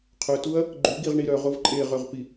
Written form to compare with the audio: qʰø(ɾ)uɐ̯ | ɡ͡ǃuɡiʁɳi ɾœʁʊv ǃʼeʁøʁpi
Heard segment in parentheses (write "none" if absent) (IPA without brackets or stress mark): t